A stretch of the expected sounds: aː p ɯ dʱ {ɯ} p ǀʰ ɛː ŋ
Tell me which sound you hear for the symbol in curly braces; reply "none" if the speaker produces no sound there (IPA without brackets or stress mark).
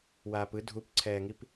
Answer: u